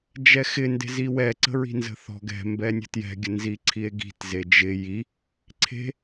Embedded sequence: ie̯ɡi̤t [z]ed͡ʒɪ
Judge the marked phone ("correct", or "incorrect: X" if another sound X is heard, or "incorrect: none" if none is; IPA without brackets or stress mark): correct